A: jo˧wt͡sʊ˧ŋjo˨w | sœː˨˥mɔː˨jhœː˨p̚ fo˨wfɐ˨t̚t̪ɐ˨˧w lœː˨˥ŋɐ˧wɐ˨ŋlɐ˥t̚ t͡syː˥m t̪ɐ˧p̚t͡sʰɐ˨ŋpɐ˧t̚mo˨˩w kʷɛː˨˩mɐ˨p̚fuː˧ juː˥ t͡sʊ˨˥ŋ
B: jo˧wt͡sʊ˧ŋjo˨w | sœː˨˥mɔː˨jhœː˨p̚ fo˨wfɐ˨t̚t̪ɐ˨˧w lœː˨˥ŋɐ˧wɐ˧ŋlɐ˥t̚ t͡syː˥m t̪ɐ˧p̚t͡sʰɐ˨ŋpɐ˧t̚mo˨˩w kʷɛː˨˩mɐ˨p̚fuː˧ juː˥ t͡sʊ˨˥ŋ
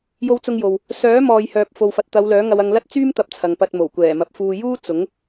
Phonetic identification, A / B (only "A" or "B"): B